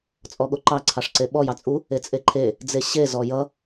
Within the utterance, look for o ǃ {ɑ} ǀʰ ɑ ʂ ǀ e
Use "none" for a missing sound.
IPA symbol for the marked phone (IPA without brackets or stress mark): ɑ